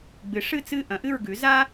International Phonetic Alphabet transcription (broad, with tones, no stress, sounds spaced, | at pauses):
ɡ͡b ɨ˩˥ ʂ ɨ˥˨ t͡s ɨ˥˨ ʔ ɐ̃˩˥ ʔ ɨ˥˨ ɹ ɡ ʉ˩˥ z a˥